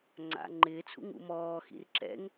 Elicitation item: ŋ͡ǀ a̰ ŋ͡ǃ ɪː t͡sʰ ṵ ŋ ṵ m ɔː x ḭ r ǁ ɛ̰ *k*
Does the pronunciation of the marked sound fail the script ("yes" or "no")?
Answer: yes